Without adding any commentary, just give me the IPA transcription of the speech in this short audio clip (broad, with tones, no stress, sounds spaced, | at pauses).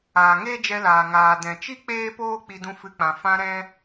aː˨ ŋ eː˦ d͡ʒ ɛ˧ l aː˨ ŋ aː˨ d ɛ̃˨ t͡ʃ i˦ k͡p eː˦ p oː˦ k͡p i˧ d ũ˧ f ɨ˧ k͡p ã˨ f ã˧ ɾ ɛ̃˧